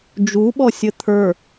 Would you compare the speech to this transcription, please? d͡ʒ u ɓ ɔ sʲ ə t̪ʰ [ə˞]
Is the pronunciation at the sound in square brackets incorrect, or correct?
correct